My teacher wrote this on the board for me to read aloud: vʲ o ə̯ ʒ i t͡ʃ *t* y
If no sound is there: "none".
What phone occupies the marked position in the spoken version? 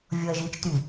t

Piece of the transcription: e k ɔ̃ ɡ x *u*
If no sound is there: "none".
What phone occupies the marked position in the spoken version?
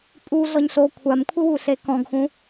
ũ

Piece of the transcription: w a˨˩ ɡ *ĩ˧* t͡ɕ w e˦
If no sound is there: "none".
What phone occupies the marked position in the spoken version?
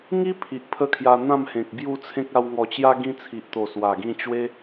ĩ˧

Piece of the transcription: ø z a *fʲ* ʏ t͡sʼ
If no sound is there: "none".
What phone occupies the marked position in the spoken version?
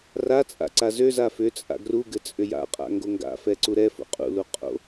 f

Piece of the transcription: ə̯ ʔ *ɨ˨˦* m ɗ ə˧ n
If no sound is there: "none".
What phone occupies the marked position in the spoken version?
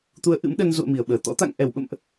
ɨ̰˧˥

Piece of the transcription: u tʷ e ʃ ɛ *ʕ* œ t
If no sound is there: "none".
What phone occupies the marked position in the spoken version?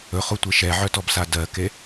ʕ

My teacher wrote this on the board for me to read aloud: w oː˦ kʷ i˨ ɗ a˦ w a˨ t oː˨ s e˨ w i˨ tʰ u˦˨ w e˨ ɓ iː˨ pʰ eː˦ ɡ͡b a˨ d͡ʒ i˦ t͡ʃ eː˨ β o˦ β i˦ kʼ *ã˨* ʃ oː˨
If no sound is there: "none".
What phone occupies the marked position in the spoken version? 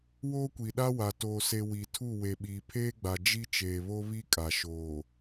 a˨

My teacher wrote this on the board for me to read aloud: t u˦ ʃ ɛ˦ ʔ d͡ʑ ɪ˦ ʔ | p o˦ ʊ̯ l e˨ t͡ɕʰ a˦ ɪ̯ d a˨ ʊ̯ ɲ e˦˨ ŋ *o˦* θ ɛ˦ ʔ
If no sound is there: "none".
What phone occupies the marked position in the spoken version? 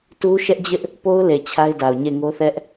o˦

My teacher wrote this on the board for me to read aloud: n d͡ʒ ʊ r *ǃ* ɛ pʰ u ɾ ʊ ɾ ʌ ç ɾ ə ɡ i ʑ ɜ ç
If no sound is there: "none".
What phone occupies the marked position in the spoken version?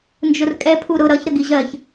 kʼ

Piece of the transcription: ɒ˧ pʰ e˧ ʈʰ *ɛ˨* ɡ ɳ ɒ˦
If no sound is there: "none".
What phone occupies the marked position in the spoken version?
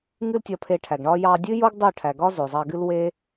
æ˨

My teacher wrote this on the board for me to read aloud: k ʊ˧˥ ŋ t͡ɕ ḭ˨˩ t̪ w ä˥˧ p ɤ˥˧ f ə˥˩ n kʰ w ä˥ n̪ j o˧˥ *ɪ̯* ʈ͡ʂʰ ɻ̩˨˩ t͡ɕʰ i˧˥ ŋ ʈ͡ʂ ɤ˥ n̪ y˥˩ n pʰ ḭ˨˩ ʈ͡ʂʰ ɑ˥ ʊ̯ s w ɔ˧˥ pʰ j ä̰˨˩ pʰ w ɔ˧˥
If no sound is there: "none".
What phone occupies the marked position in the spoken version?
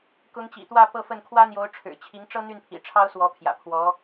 ʊ̯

